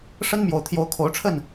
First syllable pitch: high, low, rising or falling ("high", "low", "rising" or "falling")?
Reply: high